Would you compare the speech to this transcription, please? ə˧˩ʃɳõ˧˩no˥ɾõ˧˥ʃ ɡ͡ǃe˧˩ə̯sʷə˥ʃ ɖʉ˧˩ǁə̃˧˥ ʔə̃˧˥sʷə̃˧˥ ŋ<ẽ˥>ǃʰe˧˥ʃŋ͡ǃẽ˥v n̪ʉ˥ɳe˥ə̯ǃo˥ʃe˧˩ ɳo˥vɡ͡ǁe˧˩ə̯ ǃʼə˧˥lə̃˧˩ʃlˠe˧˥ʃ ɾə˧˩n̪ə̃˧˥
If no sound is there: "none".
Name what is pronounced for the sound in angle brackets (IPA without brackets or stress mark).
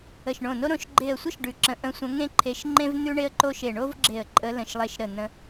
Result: ẽ˥